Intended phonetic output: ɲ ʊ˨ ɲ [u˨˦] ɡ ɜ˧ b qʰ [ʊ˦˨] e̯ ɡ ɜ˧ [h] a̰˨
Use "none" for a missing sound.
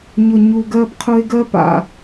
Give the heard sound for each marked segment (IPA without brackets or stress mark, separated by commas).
u˨, ʊ˧, p